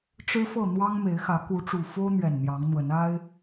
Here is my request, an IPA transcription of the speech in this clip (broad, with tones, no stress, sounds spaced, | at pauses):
ʈ͡ʂ ɻ̩˦ f ɤ˥˨ n̪ w ɑ˦ ŋ m e˨˦ ɪ̯ x ä˨˦ k u˨˦ ʈ͡ʂ u˨˩ f o˦ ʊ̯ n̪ ɥ ɛ˨˩ n n̪ j ɑ˨˦ ŋ n̪ w ə˨˦ n a˦ ɪ̯